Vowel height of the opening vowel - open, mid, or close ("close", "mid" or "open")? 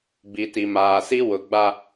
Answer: close